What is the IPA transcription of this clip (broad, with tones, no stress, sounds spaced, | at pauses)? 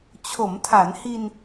t͡ɕʰ o˩˦ m tʰ a˩˦ n h i˧ n